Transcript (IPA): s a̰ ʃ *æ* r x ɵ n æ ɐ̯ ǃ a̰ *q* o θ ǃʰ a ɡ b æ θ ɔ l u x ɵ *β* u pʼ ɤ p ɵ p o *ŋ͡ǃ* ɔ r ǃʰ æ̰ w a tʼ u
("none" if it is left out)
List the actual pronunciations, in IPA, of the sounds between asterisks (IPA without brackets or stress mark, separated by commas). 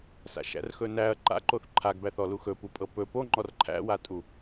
æ̰, ǃ, p, ŋ͡ǃ